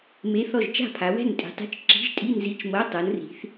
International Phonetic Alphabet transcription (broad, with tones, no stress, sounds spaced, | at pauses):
m e˧˥˧ θ ɔ˥˨ ʒ t͡ʃ a̤˥˨ pʰ a˨˦ w ɛ̤˥˨ n tʼ i̤˨˦ tˤ i̤˧˥˧ t͡ʃ ǁ i̤˧˥˧ ʒ tʼ i˧˥˧ n z i˧˥˧ t͡ʃ m ɤ˧˥˧ tˤ ɤ˨˦ n r i̤˨˦ θ